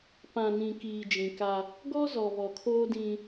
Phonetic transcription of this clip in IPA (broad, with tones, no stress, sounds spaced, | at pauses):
p ã˨ n ĩ˨ k iː˨ d͡ʒ ĩ˨ k a˦ | ɡ ɔ˦ z ɔ˨ β ɔ˨ kʰ oː˦ d ĩ˦